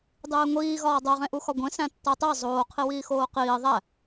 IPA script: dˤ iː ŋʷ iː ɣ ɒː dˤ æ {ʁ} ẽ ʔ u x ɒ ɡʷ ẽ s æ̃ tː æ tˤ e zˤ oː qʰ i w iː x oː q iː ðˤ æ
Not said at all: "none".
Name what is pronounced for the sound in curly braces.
ʁ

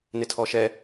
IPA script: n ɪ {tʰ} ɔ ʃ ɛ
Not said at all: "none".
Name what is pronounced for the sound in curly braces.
tʰ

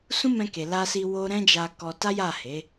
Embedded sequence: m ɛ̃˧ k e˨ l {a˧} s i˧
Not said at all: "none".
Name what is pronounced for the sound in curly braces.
a˧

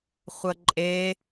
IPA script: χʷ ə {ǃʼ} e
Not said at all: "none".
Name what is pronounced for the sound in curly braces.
ǃʼ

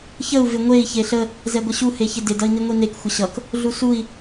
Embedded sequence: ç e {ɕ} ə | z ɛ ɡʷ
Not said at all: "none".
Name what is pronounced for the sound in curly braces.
ɬ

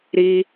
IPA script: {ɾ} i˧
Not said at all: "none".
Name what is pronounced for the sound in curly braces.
ɾ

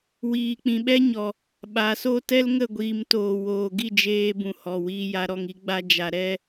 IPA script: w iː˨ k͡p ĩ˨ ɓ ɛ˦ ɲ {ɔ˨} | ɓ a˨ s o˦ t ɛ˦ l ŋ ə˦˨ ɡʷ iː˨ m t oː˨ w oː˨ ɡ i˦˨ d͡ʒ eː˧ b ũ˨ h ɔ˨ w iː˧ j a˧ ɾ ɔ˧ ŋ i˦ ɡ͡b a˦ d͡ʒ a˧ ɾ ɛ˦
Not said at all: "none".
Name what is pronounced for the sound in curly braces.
ɔ˨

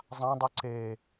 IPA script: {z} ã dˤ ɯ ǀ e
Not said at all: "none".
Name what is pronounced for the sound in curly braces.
zˤ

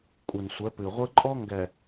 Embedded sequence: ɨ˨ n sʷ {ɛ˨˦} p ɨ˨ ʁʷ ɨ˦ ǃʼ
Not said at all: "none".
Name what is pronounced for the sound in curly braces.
ɛ˨˦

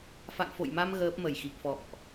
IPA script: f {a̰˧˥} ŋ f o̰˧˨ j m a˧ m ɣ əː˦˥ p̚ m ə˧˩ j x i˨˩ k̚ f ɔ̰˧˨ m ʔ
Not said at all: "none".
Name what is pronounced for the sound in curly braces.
a̰˧˨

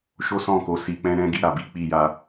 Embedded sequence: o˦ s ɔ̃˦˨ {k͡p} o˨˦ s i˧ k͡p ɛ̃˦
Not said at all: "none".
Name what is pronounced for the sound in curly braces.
k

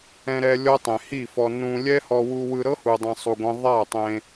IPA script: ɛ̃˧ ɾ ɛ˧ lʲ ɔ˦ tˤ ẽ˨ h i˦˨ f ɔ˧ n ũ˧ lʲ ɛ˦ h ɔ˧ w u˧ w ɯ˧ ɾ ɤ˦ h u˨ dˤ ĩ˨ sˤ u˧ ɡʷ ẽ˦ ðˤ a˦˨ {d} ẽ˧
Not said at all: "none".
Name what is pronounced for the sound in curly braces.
tˤ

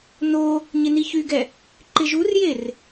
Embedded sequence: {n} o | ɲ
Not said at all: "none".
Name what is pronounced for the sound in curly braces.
n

